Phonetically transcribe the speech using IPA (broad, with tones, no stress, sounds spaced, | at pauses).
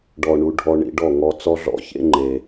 ɖ ɔ˨ ɳ u˨ ɖʱ ɔ˧ ɳ ḭ˧ ɖ ɔ˦˨ ŋ ɔ˧ t͡s ɔ˦ ɮ ɔ̰˦ ç ḛ˦ ŋ͡ǃ e˨